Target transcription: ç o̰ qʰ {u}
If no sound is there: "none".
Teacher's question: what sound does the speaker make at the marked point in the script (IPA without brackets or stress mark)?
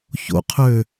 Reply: ø